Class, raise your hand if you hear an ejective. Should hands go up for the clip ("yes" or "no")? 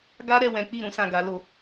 no